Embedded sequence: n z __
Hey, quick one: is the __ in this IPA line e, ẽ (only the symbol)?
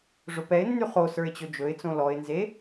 e